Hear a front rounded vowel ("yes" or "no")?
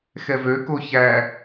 yes